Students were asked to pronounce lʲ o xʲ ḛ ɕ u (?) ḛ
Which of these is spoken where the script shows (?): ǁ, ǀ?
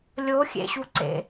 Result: ǀ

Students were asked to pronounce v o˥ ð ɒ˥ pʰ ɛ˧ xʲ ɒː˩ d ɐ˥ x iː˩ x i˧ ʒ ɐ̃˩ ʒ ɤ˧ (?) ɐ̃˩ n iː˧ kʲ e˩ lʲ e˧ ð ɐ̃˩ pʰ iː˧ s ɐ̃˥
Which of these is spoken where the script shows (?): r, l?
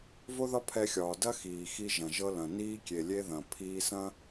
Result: l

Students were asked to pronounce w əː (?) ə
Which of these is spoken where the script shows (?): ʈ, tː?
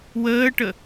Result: ʈ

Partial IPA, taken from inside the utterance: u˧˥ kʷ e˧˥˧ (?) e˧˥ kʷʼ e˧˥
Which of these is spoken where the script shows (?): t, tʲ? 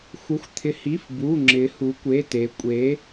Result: t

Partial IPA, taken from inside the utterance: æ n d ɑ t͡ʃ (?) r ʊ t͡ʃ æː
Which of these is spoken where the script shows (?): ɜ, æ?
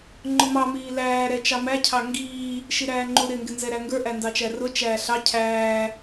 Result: æ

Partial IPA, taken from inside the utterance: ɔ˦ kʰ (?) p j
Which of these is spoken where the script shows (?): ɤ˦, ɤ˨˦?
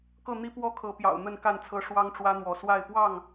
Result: ɤ˨˦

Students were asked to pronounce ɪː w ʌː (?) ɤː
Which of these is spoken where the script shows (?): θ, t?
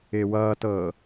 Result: t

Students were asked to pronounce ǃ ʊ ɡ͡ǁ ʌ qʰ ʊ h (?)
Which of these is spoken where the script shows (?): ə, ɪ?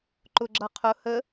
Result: ə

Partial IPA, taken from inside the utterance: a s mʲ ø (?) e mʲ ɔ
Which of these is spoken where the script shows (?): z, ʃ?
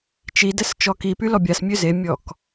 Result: z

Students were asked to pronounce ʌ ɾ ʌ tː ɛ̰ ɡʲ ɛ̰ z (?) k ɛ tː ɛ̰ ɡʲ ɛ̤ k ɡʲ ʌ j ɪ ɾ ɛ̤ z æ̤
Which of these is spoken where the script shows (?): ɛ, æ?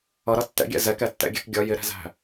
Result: ɛ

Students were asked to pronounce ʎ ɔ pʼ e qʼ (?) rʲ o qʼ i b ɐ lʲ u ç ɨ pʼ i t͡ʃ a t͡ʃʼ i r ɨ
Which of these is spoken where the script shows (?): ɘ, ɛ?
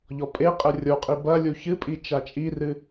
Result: ɘ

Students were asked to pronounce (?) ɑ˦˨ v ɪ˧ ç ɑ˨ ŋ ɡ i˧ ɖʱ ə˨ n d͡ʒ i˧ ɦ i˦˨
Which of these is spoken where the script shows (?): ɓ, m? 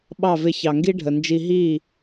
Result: ɓ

